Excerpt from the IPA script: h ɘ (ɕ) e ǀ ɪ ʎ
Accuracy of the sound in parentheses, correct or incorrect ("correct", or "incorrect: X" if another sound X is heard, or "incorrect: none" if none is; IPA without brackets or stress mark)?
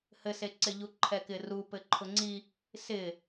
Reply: incorrect: s